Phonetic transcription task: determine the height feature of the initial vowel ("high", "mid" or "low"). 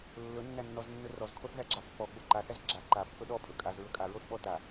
mid